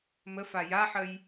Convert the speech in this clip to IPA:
məfa jaħəj

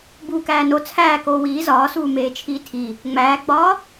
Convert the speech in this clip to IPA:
buːkæːno t͡sʰæː koːwiː zɒːsuː meːt͡ʃʰiːtʰi | ŋ͡mæːɡ͡bɒː

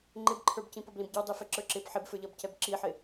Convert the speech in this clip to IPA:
ŋ͡ǃɪbǃʰə˞bcĩ pʌblĩbɟə˞dˤi fɛǁə˞ǁɪb ħɪbfə˞ʎʌbcɛb ǁiħɪ

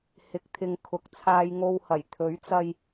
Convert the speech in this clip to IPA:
hɪ˨˥k̚t̪ʰɪ˨ŋ kʰʊ˨k̚t͡sʰaː˧jŋo˧whɐ˨˩j t̪ʰɵ˨˥ɥt͡sɐ˧j

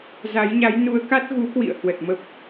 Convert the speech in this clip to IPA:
za˨˦jɲa˨˦jnu˨˦ə̯ka˦˥t̚ ɣu˨˦kwḭ˧˨ə̯ hwə˨˩t̚mə˦˥p̚

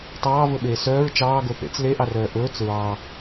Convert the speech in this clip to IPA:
tˤɑːvɵɓeː sœːɹ t͡ʃɑːɡo θḛt͡s leʔɑrœː ʔɵːt͡s ɹɑ

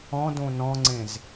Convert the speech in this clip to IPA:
ɔ̃dõ nɔ̃ŋ͡ǀẽz

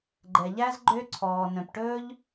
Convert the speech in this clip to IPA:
ɡ͡ǃɛ˩ʎæ˥z ɡ͡ǃøː˥ǀʰɔː˩nœ̃˩p ʈɵː˥ʎ

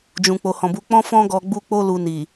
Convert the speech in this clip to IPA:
d͡ʒũ˨k͡po˨hɔ̃˨bu˧ k͡pɔ̃˦fɔ̃˦ ɡɔ˧ɡ͡bu˦ k͡po˦ lu˧ni˨

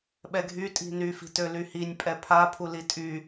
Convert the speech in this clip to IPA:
ɓɛɡʱy tʼi̤ny fi̤tølyhinʲ pʼɛpʰa pʰulitʼy

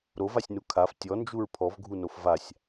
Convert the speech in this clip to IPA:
ɾovasʲnu kʰaf tʲɔnd͡ʒuɹ pʰɔvɡʱunof vasʲ

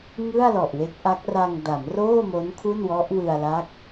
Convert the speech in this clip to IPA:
ŋɯ˥˩a̯ lɔ˨˩ʔwe˦˥k̚ʔa˦˥k̚ ra˧ŋda˩˦mroː˥˩mo˦˥n kʰu˥˩nwɔ˦˥ʔwɯ˧a̯la˦˥k̚

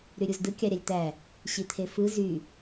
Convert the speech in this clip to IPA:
ɾyɾʲuzdɯ kʲɑɾʲɑlʲt̪æ | ɕit̪ʰefɯ zy

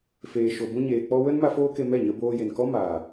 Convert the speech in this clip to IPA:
feː˨ʃo˨bũ˧ɲeː˨ k͡pɔ˧wə˦nma˧ foː˦ke˧mɛ˦˨ɲə˧ boː˧je˨nkɔ˦maː˨

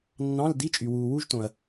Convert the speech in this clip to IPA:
nːɑ̃˧˥˧ldi˧˥˧t͡ʃʼy˨ wuː˨wu˥ʒtõ˨ɐ̯

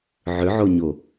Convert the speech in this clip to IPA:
ʕʏʕoɲo

